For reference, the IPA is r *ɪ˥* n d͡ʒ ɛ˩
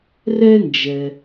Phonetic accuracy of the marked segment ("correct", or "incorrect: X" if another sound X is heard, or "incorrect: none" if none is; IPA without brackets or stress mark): incorrect: ɛ˥